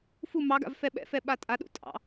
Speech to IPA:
fu mɑɡa̰v fɛɓɛ̰fɛ ɓatʼaɗṵ tʼɑ̰

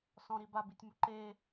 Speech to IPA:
sɔ̃ɾiba bitʲmuǃe

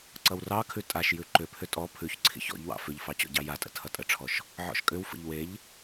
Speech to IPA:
ǀʌwrɑkʰʉ tʼaʃjʉ ǃʏpʰʏ tʼɔ pʰʉçǀʰḭç ɔ̰ʎwɑ̰ fʏʎfɑ t͡ɕɔ̰ɟɑjatʼə̰ tʰʌtʼəʈ͡ʂʰɔʃ | ʕɔ̰ʃkʼʏwfə̰ʎ weʎ

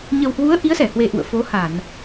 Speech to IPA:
ɲə˨˩whwu˨˦ə̯ ʔi˨˦ə̯sɛ˧˩hwe˨˩ ʔṵ˧˨ə̯fo˨˦ha˧˩˨n

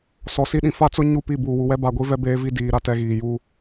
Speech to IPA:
sɔ˨si˦ɗĩ˨ fa˦t͡sʊ˦ ɲu˦˨pi˦˨ buː˨wu˨wɛ˦ ba˨ɡʷi˦ vɛ˦beː˦vi˦ diː˨ɾa˦˨tɛ˦ɣiː˨ ju˦

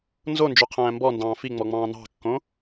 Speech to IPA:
nzond͡ʒo qʰæ̃ːmbɔndɑ̃ː fiŋ͡mɔ ŋ͡mɑ̃ːnɑ̤kːõ

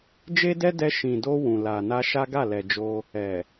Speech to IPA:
d͡ʒe˦dɛ˦dɛ˧ ʃĩ˨do˧ wũ˨la˨na˧ ʃa˦ɡa˦˨lɛ˨d͡ʒo˧ | ɛ˨

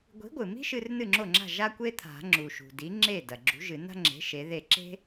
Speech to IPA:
ɡʷi̤˨˥ɡʷɨ˩mi̤˥ʃɨ˧r nɨ˥˩ŋ͡ǁo˥˩ŋ͡ǁa̤˥˩ ʒa˥kʷe˥ t̪ʰa̤˨˩˦ŋ͡ǁu˩ʃṳ˩ di˨˥ŋ͡ǁe˥˩ dɐ˩ɡ͡ǁṳ˨˥ʒɨ˨˩˦ na̤˥ŋ͡ǁe̤˨˥ ʃe˨˥ðe˥˩ ǁe̤˥

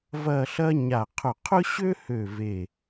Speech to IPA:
vɐ˥˧ɬɐ˥ ɲa˧˩ qʰʊ˧˩qʰʊ˥ɕø˥hø˧˩ ve˧˩

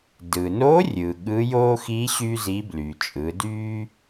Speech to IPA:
dɯ˩no˧˥ rʲɯ˩ɠɯ˧˥joː˥ xi˧˥ ɕy˥zi˧˥ blyː˩ t͡ʃʼɯ˩˧ dyː˥

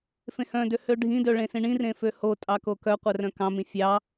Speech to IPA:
fẽhœ̃dø høɖʱĩdø ɭẽsĩɳĩ rẽføho tʼɑkokœ qʷœrœ̃kɑ̃mĩ fʲɑ

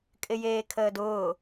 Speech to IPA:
kʼɪjeːkʰəːdʊː

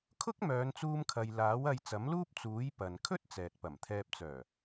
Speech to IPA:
kʰʊ˥k̚mœː˨˧nt͡suː˧mkʰɐ˨j laː˨˥wɐ˧j t͡sɐ˨˥mluː˥p̚ t͡suː˨˥j pɐ˨nkʰɵ˥t̚ t͡sɛː˨t̚pɐ˨˩mt̪ʰɛː˧p̚t͡sœː˨˩

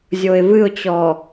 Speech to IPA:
zʲoɪ̯vɨʊ̯t͡ɕɔ

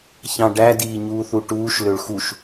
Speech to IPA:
çɑ̃ɖæ diːɲuːθuʈuːʃ løɭxuʃ

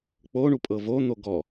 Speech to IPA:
k͡poɳupʼɤ von̪o ɡɔ

